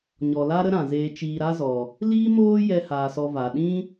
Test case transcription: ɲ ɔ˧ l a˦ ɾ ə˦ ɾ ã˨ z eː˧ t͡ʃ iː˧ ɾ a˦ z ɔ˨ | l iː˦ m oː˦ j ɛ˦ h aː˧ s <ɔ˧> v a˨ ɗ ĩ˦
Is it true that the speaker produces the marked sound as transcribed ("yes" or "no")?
yes